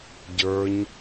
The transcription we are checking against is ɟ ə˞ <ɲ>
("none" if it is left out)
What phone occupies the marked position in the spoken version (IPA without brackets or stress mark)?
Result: ɲ